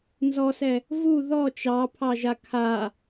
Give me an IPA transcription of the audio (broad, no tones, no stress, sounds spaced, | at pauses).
n z ɔ s ɛ | v u ð ɔ t͡ʃ ɑ pʰ ɑ ʒ a kʰ a